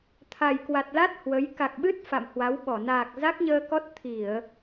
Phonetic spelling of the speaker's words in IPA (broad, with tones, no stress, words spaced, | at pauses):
t̪ʰa˨˩jkwa˨˩t̚la˦˥t̚ hwə˨˦j ka˨˩k̚ɓɨ˦˥t̚ fa̰˧˨mhwa˨˦wɓɔ˧˩ naː˨˩k̚za˦˥k̚ɲəː˧kɔ˦˥t̚ t̪ʰi˧˩˨ə̯